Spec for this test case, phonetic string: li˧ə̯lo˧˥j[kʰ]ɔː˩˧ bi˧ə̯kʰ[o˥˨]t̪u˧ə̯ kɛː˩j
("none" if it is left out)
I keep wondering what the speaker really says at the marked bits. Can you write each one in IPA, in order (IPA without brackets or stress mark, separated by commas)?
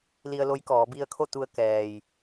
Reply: k, o˥˨